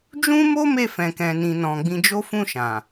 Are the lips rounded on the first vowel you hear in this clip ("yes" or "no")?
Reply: yes